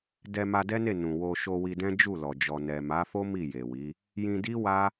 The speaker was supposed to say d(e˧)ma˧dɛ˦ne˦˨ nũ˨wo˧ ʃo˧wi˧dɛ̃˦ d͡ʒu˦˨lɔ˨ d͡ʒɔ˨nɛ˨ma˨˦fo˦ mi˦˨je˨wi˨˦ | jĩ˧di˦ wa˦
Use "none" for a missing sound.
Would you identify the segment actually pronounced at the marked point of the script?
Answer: ɛ˧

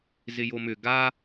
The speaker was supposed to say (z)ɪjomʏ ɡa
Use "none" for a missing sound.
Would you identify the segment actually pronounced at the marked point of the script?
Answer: z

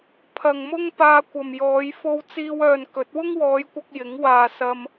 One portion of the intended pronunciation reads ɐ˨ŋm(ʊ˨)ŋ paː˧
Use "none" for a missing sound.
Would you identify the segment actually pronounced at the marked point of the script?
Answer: ʊ˥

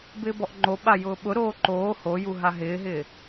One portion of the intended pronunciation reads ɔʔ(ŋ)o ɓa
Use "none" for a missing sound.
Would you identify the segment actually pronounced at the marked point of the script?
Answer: ŋ͡ǃ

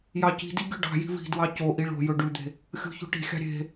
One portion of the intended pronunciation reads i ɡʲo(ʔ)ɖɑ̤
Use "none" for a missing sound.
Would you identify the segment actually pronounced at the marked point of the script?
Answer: none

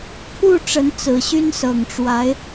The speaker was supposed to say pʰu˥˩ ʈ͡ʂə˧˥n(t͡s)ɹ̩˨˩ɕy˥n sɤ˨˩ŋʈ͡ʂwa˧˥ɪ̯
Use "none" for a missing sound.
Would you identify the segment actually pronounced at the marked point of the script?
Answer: t͡s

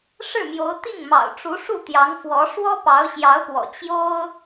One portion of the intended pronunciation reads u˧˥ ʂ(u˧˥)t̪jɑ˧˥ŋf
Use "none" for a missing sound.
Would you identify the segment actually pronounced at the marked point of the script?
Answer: u˥˩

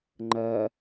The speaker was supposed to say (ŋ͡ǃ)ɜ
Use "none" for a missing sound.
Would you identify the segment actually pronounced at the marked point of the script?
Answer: ŋ͡ǃ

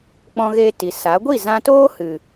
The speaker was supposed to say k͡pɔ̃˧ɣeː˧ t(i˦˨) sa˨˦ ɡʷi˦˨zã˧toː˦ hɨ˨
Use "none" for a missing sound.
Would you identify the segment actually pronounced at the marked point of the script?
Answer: i˨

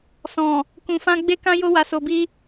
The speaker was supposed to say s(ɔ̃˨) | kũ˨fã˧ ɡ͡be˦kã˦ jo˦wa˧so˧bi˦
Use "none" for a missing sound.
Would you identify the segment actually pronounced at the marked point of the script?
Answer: ɔ̃˨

